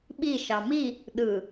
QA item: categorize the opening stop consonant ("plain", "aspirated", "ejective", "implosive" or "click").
implosive